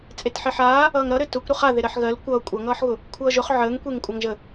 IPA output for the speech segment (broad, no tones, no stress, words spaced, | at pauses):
t͡sʼetħeħaː | ʌːŋɾʌɾɘ tʊkʷ ɾʊχa ðeɾɜħɣɜl kʷʌː kʷʼʌŋʌːħɣʊ | kʷʰʌːʒʊχ ʕəːŋkʷeŋ kʷʼaŋʒə